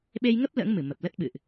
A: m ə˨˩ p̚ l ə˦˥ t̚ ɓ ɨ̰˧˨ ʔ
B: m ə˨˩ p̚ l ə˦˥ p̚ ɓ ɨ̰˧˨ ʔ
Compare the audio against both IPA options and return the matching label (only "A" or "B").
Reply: A